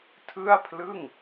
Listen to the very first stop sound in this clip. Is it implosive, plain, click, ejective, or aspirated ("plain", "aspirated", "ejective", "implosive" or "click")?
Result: aspirated